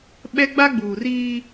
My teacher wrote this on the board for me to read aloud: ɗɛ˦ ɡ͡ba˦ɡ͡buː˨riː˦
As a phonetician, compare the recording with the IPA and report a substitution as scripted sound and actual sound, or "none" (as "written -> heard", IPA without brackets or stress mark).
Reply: ɗ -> ɓ